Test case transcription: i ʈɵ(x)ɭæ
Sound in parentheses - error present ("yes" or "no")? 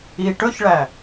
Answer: yes